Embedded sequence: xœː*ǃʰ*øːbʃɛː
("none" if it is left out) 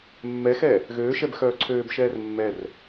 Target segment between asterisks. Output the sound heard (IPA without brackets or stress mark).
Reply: ǀʰ